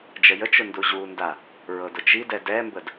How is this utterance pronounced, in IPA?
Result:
d͡ʒ ə j ə t͡ʃ ʊ n d u ʑ u n d a | ɹ ɤ d ʊ t͡ʃ i d ɛ d ɛ m b ə d

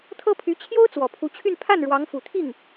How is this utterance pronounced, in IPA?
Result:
t̪ʰ ɤ˥ pʰ y˧˥ t͡ɕʰ j o˥ ʊ̯ t͡s w ɔ˨˩ pʰ u˧˥ t͡ɕʰ y˥˧ n pʰ a˥˩ n ɻ w ɑ˧˥ ŋ f u˨˩ t̪ʰ i˥˩ ŋ

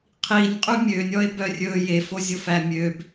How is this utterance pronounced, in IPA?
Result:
qʰ i nʲ qʼ ʉ mʲ ø nʲ ɔ e̯ b œ rʲ ɵ j e f o zʲ o f æ mʲ ø b

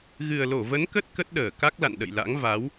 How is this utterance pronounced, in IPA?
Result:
ɣ ɨ˨˩ ə̯ l o˧˩ v ə˨˦ n k ə˦˥ t̚ k ə˦˥ t̚ ɗ əː˧˩ k a˦˥ k̚ l a̰˧˨ n ɗ ə̰˧˨ j l a̰˧˥ ŋ v a˨˦ w

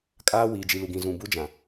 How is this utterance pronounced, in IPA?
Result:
kʼ aː˦ w iː˨ d͡ʒ i˨ l u˨ ɡ ĩ˨ z ũ˨ b u˦ d͡ʒ ã˨

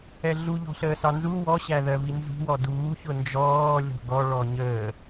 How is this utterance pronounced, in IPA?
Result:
ɛ ɮ u ʎ ɔ̤ ɬ əː s ɑ n z u w ɔ ɕ æ ð ɜ v i n z ṳ w ɔ d uː ç ʊ n d͡ʒ ɔː lʲ ɔ̤ ɡ ɔ ɭ ɔ ɲ əː

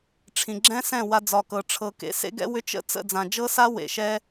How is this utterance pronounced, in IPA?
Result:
ʈ͡ʂʰ ĩ˨ ɡ͡ǁ ɛ̃˦ s ɛ̃˦˨ w a˧ d͡z ɒ˨ k ɤ˨ ʈ͡ʂʰ ɤ˨ k ḛ˧ s ḛ˦ ɡ ɛ̰˦ w ʏ˦ t͡ʃ ə̰˦ t͡s ə̰˦˨ d͡z ã˨ d͡ʒ ɤ˦ s a˦ w ḛ˨ ʃ ɛ˦

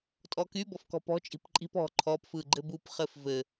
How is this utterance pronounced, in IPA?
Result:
tʼ ɔ k y b ɔ f k ɔ̤ p ɔ̤ t͡ʃʼ i̤ p ǃʼ i̤ p ɔ̤ ǃʰ ɔ p f ɯ ɡ͡ǃ ɘ b u p χ ɘ f v ɘ

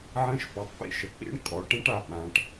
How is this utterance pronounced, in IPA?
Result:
ʕ ə̃˦˥ ʃ p ɔ˩˧ tˤ p ḭ˥˩ ʃ ə˩˧ k͡p ḭ˦˥ ɳ kʼ ɔ˩˧ ʈ ɛ̃˦˥ ʈ a˥˩ ɓ ã˩˧ ʈ

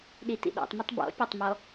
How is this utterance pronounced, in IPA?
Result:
ɗ i t ḭ ɗ ɔ̰ tˤ m i tˤ b ɔ̰ pʲ a tˤ m ɔ

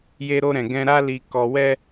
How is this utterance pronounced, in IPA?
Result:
j e˧ ɾ o˧ ɾ ɛ̃˨ ɡ ɛ̃˧ ɾ a˦ l i˧ k ɔ˧ w ɛ˦

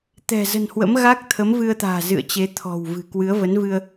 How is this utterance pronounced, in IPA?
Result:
t̪ ɛ̤˨˩ z ə̤˨˩ n h w ə̰˧˥ m ɣ a˦˥ k̚ t̪ʰ ə˨˦ m v ɨ˧ ə̯ t̪ a̤ː˨˩ z ɨ̰˧˨ ə̯ t͡ɕ e˨˦ t̪ʰ ɔ̤˨˩ w v ɨ̤˨˩ k w ɨ˨˦ ə̯ v ə˨˦ n v ɨ˧ ə̯

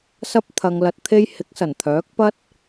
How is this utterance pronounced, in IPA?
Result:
s ɐ˧ p̚ t̪ʰ ɐ˨ ŋ l ɐ˨ t̚ t̪ʰ e˧ j h ɪ˨˥ k̚ s ɐ˨˩ n t̪ʰ œː˨˥ k̚ p ɐ˥ t̚

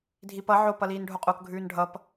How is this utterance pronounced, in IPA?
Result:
dʱ i p ʌ ʕ o p ʌ l iː n ɖʱ o qʼ o k ɡʱ ʉː n ɖʱ ʌ p

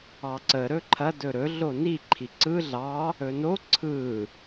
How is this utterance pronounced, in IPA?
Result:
ɑ ǀ ə ɾ ɵ ǃʰ ɐ d ɵ ɾ ɵ ɮ o n i ǃʰ i ǀ ɯ ɮ ɑ | ɵ n o ǀʰ ɯ

